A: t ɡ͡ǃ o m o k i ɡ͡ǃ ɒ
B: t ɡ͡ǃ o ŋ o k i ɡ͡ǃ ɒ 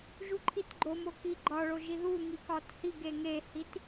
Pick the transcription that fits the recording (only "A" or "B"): A